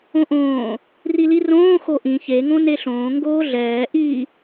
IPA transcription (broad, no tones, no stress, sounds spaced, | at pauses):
õ ʔ õː | r i l i r õː x o ʔ ĩ ç e ŋ õ n e ɬ õː ŋ ɡ oː ɮ ɛː ʔ i